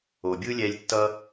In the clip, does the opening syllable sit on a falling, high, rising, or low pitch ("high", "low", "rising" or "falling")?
low